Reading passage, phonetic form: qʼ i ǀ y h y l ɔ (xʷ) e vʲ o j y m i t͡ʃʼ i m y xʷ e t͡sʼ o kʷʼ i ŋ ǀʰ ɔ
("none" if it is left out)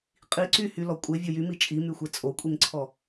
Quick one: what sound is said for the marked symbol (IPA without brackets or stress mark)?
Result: kʷʼ